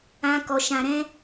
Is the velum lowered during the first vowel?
yes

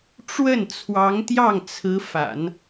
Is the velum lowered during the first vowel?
no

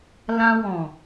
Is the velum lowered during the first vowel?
yes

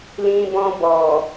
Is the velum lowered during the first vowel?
yes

